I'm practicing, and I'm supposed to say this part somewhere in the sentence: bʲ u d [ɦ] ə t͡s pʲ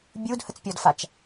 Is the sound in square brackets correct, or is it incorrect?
incorrect